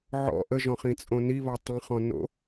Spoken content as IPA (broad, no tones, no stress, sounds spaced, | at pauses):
ʕ ɔ̰ ʔ ə ʒ ɔ̃ χ ĩ t͡sʼ õ n i β ɔ tˤ ə̃ χ ɔ̃ n o̰